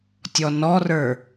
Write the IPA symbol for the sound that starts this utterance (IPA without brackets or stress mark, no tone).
tʲ